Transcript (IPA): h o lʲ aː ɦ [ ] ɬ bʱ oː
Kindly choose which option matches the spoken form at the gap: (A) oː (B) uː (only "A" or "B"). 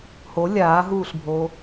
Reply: B